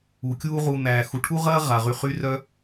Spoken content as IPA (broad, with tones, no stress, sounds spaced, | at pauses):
u˩ kʲ uː˦ ʁ u˨ n̪ æː˩ x u˩ ʈʰ u˥ ʁ ɐː˥ ʁ a˩ ʁ y˨ χ y˦ r œ˦